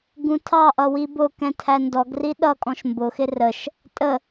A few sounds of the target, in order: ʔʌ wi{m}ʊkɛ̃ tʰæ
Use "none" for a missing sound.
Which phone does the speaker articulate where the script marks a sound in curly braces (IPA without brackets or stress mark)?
b